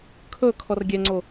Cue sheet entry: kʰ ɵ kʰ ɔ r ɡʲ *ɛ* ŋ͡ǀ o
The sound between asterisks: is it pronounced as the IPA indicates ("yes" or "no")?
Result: yes